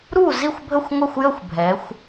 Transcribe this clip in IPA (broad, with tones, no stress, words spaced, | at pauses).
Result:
ɾu˥˩zi˥˩xʷbʱə˥˩xʷ ŋʷɛ˥˩xʷ jə˥˩xʷ bʱɛ˩˧xʷ